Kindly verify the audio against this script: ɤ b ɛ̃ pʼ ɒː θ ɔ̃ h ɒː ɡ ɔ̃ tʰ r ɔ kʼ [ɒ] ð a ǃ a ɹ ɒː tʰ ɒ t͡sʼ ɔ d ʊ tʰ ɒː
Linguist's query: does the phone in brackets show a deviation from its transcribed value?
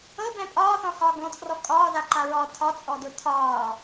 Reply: yes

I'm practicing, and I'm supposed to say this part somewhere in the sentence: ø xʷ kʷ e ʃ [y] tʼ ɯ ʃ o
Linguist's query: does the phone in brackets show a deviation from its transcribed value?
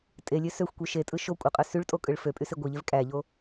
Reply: yes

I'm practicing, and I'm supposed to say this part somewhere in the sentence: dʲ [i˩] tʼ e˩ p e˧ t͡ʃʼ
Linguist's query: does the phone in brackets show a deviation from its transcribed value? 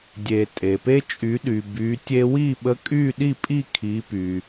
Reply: yes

